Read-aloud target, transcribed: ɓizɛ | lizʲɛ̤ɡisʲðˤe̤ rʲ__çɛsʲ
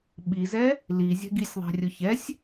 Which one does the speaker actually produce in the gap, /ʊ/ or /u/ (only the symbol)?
ʊ